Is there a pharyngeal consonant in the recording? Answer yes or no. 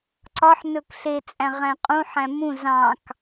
yes